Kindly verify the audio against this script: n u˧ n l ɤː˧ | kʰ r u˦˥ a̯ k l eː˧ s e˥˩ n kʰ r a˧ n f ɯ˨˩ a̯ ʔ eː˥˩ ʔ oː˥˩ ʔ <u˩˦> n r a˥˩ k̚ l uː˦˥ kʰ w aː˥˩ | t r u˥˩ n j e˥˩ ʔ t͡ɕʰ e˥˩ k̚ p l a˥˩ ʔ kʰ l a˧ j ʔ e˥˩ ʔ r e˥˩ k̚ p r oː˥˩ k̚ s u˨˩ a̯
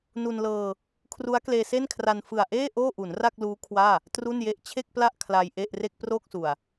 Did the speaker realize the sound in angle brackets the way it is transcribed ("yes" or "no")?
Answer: yes